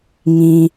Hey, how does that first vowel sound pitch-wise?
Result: low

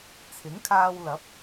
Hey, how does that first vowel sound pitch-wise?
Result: rising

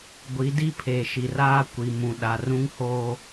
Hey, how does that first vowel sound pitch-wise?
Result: rising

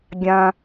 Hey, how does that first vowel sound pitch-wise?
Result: high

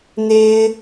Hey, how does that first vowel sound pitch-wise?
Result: high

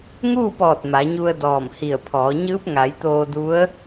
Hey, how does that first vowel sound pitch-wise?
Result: falling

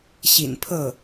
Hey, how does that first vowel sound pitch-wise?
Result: low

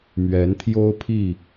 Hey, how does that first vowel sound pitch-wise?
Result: rising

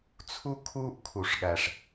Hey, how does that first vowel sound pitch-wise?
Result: high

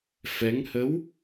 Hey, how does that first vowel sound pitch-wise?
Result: rising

